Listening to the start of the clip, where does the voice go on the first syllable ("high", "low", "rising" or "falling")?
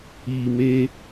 low